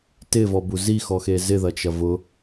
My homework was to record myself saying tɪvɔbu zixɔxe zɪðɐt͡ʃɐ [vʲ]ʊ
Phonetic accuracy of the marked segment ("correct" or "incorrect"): incorrect